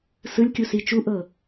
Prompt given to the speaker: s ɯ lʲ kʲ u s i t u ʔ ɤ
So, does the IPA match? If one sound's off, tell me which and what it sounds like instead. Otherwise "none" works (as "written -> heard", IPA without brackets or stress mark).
t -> t͡ʃ